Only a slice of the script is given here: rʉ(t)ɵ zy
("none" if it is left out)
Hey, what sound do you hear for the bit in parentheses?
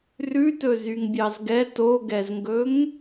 t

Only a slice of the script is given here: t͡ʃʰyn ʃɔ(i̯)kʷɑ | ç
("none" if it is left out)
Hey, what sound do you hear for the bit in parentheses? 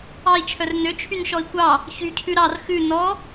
i̯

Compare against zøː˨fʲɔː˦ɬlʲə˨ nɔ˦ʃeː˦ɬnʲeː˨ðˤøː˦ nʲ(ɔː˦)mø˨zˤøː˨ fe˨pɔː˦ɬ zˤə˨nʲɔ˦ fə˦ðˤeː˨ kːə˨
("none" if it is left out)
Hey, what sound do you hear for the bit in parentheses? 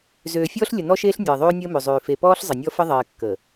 əː˦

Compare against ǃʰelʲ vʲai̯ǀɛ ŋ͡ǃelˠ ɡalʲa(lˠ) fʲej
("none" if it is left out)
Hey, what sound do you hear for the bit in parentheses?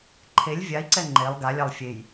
lˠ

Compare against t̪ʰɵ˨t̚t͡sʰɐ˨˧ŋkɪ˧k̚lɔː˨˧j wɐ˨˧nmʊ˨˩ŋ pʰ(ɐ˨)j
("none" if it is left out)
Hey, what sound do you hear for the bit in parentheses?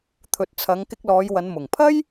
ɐ˥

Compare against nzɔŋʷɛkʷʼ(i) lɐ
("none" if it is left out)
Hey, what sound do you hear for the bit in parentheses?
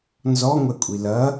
i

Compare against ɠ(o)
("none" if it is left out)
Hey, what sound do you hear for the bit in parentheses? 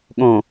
õ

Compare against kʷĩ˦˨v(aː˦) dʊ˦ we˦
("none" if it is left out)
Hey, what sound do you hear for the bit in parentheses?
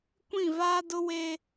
aː˦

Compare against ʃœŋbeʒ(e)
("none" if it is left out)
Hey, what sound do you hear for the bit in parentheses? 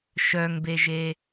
e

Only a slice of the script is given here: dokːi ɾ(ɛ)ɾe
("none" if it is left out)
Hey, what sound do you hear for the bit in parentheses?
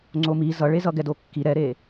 ɛ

